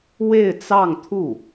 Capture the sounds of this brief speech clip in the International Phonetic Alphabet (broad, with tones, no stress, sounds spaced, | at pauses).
w e˥˧ ɪ̯ t͡s ɑ˥˧ ŋ t̪ʰ u˥˩